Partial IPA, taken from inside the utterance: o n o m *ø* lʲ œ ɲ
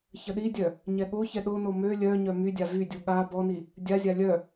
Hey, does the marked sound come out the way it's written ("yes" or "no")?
yes